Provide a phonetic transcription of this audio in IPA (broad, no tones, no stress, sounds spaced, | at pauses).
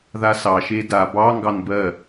ð a s ɑ ʃ e d a b ɑ ŋ ɡ ɑ n b ɜ